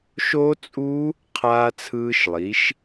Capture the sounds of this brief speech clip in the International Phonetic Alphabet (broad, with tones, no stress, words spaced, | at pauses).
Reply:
ʃo˦˥t͡sʼu˦˥ | qʰaː˦˥t͡sʰɯː˦˥ʃlˠi˨˥ʃ